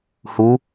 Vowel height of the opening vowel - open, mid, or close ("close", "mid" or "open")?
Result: close